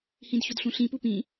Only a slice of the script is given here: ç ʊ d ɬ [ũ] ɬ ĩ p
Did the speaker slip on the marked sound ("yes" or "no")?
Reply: no